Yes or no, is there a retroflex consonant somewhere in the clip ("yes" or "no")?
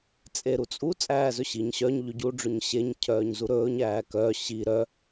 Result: yes